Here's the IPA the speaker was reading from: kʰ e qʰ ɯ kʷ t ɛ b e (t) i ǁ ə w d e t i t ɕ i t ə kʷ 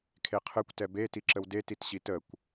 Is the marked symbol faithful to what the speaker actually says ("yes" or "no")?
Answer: yes